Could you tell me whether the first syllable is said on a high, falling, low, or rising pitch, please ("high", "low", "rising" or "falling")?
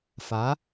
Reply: rising